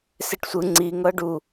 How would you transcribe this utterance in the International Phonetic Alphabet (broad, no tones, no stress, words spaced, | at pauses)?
seʈsʷɯ ŋ͡ǀi ŋɤɖu